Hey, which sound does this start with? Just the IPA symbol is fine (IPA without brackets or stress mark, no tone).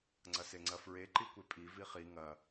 ŋ͡ǀ